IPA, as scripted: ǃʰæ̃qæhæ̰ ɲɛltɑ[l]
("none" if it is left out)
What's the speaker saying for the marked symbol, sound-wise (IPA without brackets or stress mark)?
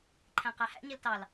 l